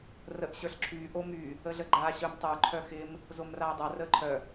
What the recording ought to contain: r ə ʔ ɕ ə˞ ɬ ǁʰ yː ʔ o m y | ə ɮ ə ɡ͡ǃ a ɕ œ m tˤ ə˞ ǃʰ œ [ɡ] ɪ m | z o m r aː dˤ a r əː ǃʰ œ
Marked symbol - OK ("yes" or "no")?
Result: no